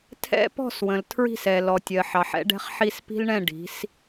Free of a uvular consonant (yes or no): no